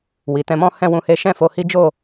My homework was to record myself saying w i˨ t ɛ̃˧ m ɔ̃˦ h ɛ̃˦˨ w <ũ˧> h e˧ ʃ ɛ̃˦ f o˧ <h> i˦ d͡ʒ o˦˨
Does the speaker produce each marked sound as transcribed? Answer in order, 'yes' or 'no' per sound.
yes, yes

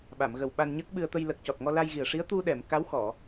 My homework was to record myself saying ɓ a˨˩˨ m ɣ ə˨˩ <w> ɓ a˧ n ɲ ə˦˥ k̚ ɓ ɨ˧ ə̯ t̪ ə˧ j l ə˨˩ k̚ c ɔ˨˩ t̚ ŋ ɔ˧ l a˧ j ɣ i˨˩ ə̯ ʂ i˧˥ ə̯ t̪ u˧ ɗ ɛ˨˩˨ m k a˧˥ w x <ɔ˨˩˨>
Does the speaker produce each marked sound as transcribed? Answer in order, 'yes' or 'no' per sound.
yes, yes

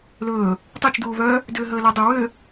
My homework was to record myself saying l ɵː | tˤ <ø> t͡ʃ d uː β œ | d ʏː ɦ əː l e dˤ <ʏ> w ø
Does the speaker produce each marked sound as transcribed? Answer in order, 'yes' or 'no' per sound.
no, yes

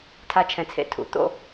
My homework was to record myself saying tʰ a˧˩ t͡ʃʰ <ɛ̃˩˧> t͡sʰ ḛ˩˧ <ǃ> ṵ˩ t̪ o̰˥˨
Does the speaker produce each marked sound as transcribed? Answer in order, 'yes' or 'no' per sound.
yes, no

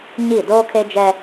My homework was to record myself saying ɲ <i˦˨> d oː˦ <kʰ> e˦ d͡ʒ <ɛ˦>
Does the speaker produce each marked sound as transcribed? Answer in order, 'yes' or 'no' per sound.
yes, yes, yes

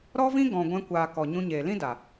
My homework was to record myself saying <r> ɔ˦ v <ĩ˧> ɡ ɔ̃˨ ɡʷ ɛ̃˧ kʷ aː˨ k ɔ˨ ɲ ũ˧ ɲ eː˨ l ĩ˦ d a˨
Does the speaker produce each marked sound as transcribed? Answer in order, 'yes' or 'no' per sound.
no, no

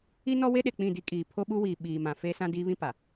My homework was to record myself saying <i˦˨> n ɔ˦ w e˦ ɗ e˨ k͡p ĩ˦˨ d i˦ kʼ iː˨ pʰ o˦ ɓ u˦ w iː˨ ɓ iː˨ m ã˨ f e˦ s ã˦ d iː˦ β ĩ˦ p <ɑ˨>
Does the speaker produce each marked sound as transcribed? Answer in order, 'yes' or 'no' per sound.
no, no

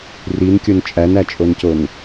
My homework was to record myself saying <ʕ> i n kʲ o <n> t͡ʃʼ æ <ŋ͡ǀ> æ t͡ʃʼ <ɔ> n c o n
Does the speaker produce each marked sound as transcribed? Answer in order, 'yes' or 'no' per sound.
no, yes, no, no

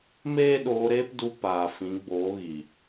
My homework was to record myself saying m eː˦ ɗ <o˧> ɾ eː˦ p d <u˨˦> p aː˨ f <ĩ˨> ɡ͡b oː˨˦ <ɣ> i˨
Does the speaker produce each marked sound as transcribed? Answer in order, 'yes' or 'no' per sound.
no, no, no, yes

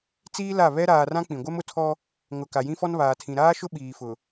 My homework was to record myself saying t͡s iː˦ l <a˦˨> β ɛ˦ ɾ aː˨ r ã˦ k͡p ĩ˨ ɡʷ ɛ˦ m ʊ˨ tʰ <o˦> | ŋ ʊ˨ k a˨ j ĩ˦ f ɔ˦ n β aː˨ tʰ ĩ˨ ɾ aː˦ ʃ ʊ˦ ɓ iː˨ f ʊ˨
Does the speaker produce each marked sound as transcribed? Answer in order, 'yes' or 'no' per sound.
yes, no

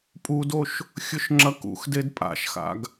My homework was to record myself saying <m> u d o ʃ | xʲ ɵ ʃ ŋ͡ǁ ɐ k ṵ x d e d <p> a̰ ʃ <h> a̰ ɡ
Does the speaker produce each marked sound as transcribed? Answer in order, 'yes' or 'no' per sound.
no, no, no

